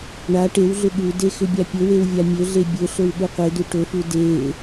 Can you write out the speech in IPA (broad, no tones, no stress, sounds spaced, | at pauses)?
ɳ a ʈ e w ɮ ʏ ɠ u d e x ʏ bʲ a pʲ ɵ w e w vʲ a mʲ ɵ ɮ e bʲ ɵ ɬ ɵ w ɠ u qʷ e d u ʈ ɵ f u d e